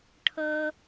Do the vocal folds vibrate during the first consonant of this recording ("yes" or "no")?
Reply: no